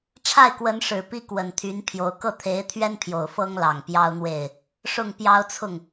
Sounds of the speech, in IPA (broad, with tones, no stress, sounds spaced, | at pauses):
ʈ͡ʂʰ a˥˩ ɪ̯ k w ə˧˥ n ʂ ɻ̩˨˩ p i˥ k w ə˨˩ n t̪ʰ y˧˥ n pʰ j o˧˥ ʊ̯ k ɤ˥˩ t̪ʰ e˧˥ ɪ̯ t̪ʰ ɥ ɛ˥ n pʰ j o˨˩ ʊ̯ f ɤ˥ ŋ l ɑ˨˩ ŋ p j ɑ˥ ʊ̯ n̪ w e˥˩ ɪ̯ | ʂ ʊ˥˩ ŋ p j ɑ˥ ʊ̯ t͡sʰ ʊ˥˩ ŋ